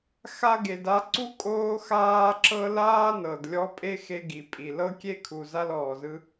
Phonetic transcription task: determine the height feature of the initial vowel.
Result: low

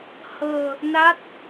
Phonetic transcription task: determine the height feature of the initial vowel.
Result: mid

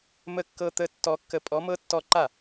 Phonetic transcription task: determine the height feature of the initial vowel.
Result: mid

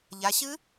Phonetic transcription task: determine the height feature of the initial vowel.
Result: low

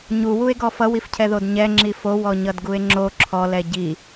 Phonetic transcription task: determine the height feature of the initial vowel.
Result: high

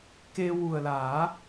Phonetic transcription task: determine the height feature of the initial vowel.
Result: mid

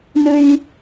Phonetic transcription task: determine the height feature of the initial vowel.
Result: high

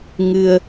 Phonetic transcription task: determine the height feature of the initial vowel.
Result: high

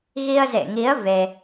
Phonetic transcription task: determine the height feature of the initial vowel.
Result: high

